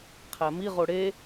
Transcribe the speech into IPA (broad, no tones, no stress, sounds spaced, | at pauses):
qʰ æ m i ʁ o ɽ e